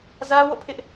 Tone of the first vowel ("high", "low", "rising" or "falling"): high